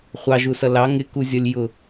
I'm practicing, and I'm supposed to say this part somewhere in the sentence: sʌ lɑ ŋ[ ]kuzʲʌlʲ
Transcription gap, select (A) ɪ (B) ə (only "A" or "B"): A